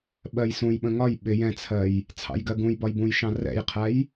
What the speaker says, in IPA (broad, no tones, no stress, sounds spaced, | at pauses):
ɓ ɜ j s ũ j ɓ ə̃ ŋ ɒ j ɓ ɪ j ɛ̃ t͡sʰ ɜ j | t͡sʰ ɑ̰ j ɡ ɜ ɡ ũ j b ɒ j b ũ j ʃ ɑ̃ r ɛ̰ j qʰ æ j